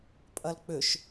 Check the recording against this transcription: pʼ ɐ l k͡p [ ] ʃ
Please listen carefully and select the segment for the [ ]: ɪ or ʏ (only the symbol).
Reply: ʏ